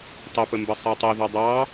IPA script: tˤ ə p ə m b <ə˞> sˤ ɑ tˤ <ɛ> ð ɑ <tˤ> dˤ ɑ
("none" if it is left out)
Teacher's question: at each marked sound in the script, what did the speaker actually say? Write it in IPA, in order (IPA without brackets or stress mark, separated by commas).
ə, ɛ, none